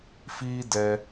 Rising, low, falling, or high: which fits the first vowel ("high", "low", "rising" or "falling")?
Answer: high